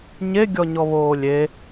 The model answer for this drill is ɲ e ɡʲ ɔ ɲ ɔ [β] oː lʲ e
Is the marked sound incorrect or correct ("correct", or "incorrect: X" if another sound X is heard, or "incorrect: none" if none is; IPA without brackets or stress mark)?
correct